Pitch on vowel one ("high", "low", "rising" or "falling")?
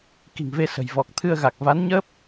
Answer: low